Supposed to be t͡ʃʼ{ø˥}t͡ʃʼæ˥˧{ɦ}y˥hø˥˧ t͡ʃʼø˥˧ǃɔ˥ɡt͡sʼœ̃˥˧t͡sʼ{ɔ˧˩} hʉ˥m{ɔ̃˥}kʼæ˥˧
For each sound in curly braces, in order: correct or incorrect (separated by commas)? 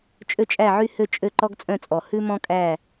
correct, incorrect, correct, correct